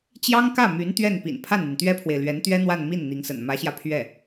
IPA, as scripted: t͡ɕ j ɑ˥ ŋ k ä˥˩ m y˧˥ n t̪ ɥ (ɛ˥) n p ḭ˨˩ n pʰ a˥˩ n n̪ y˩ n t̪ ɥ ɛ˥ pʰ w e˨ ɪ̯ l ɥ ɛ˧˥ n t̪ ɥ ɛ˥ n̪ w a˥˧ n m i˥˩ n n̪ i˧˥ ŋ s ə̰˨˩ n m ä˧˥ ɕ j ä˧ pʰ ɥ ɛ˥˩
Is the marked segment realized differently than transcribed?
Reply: yes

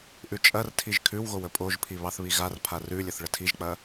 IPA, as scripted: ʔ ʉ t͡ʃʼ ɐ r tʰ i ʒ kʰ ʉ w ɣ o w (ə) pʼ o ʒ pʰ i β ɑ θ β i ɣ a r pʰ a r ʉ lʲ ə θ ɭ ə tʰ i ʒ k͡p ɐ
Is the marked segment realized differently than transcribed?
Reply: no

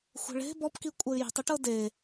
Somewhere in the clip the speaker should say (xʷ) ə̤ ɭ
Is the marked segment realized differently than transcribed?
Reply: no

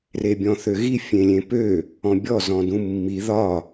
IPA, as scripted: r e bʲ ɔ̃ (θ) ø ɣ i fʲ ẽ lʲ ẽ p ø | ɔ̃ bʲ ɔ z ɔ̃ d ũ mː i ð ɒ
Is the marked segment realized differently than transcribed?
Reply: no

